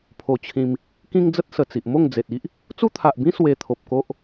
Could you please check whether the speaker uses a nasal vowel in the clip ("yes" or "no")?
yes